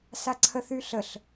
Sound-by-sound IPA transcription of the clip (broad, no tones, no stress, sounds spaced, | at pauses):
s a ǀʰ ə θ y ɬ ə ɬ